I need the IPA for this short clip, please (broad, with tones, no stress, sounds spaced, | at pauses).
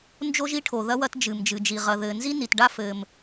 n d͡ʒ o˥ ʒ i˥ ʈʰ o˩ ð ɐ˥ w ɐ˥ t d͡ʒ ɨ˩ m d͡ʒ ɨ˩ d͡ʒ i˩ ʁ ɐ˩ ð ɘː˩ n z i˥ n i˩ t ɖ a˥ f ɘː˩ m